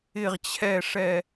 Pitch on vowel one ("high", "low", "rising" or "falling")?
falling